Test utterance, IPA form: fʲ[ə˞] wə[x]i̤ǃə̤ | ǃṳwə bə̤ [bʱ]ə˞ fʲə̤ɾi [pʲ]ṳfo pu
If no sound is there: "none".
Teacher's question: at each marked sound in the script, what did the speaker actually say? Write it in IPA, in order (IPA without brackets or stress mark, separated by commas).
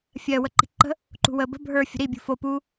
ɜ, ǃ, bʱ, bʲ